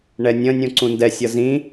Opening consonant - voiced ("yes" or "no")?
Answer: yes